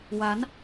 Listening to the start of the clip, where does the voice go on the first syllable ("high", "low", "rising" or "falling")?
rising